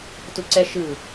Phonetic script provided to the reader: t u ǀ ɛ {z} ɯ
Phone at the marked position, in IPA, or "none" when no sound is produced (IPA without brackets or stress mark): ʃ